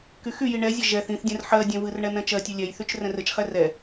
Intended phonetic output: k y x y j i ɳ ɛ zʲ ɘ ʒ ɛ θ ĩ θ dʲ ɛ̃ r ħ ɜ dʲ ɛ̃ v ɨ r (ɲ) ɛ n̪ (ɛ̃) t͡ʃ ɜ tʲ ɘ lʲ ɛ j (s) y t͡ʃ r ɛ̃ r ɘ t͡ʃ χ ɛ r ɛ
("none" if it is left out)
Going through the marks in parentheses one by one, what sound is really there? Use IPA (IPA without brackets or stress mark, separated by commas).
ɳ, ɛ̃, θ